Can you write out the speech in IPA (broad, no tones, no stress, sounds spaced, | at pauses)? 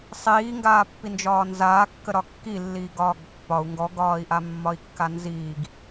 sˤ iː ŋ ɡ aː pː i n d͡ʒ ɒː n z aː kː ə ɾ ɒ kː i lː iː ɡ ɒː ɡ pː ɒ u̯ ŋ ɡ ɔ ɡ ɒː i̯ ʔ a mː ɒ i̯ kː a n z iː ɡ